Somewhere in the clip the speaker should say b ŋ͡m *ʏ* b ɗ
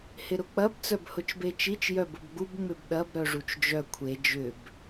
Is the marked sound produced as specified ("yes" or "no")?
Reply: yes